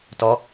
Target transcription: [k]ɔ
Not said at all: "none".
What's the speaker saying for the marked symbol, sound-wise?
t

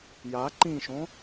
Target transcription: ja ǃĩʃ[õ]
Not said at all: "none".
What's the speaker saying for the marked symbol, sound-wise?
õ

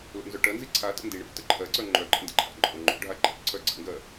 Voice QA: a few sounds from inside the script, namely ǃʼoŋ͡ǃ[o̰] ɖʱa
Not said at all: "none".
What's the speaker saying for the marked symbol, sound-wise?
o̰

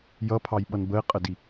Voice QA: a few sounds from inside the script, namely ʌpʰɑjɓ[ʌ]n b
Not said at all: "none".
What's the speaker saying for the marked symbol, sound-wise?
ʌ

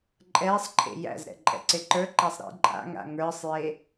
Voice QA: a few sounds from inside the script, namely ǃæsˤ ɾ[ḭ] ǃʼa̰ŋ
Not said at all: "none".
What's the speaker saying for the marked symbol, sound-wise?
ḭ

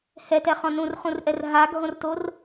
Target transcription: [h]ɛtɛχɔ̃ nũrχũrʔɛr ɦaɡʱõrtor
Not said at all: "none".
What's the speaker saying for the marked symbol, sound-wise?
h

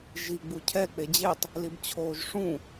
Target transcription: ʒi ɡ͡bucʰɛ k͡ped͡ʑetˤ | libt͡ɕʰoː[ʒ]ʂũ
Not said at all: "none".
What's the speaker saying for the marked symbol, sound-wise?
ʒ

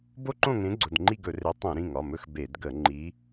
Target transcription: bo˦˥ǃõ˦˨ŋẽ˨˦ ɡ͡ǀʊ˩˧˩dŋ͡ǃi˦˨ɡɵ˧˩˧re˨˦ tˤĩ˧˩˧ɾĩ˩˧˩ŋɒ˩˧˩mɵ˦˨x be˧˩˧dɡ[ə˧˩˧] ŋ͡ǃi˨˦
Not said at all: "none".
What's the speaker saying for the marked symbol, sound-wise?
ə˧˩˧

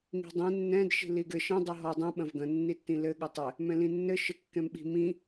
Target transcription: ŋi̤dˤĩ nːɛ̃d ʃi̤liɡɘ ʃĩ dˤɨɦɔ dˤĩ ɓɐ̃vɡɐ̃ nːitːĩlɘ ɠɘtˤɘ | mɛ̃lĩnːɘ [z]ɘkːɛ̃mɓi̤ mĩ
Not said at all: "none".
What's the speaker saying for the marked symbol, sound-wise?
ʃ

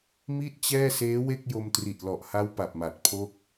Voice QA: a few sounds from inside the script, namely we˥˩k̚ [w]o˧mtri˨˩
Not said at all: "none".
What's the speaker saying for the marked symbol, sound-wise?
j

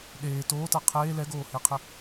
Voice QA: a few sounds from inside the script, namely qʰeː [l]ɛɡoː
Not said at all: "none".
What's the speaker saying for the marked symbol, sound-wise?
l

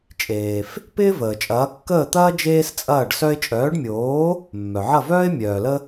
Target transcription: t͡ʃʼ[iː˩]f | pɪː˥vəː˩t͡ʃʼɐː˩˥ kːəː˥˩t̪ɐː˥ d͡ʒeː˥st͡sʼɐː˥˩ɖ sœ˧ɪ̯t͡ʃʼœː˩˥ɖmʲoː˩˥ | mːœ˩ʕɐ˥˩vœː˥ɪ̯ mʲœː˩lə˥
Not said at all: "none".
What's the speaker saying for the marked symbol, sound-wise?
eː˩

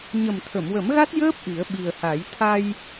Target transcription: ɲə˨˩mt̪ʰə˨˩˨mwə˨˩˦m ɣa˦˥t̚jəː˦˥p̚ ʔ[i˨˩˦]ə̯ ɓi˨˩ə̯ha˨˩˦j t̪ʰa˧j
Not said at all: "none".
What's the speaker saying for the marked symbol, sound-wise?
i˨˩˦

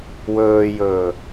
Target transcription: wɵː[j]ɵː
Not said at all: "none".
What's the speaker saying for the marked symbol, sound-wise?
j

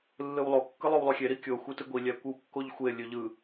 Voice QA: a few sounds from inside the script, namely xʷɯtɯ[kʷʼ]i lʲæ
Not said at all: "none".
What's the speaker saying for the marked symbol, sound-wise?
ɡʷ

